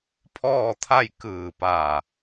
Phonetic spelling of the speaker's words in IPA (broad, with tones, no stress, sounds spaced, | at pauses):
pʰ ɔː˥˨ t̪ʰ a˥˨ j k ɯː˧˩ p a˧˩